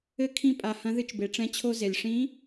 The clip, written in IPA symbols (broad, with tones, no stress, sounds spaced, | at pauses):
ɘ˧˥ kʰ ĩ˧˥ pʼ a˩ h ɐ̃˧˥ ð ɨ˧ t͡ʃ b e˩˧ ʈ͡ʂ ɛ̃˧˥ t͡ɕʰ o˧ z e˩ lʲ ʂ ĩ˧˥